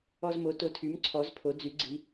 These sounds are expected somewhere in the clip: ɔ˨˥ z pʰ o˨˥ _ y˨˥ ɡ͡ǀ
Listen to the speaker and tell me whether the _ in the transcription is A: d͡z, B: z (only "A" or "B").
A